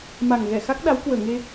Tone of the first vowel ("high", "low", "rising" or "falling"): low